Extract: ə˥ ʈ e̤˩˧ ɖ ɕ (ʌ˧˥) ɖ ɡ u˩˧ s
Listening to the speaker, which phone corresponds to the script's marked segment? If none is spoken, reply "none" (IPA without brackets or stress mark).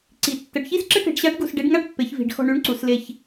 a˧˥